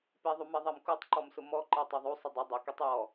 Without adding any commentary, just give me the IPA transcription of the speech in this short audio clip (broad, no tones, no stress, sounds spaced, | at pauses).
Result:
p e ðˤ u m e ðˤ ɛ m k u tˤ ǃ ɔ m s ʊ m ɔ ǃ e tˤ ɛ ðˤ u sˤ ʊ dˤ ɪ dˤ ʊ k e tˤ j ɔ